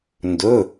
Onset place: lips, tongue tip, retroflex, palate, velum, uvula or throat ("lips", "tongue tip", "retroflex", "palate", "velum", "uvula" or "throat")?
tongue tip